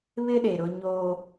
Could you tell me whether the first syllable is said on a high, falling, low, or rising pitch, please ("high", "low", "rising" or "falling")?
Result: high